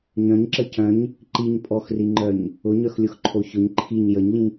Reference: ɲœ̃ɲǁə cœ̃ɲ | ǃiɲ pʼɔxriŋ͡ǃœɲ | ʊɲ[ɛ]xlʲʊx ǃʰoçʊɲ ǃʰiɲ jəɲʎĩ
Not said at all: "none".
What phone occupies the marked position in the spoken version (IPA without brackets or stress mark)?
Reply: œ